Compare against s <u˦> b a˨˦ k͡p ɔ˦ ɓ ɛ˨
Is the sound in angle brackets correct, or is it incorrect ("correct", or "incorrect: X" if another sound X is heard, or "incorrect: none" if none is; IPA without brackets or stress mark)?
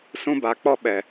incorrect: ũ˦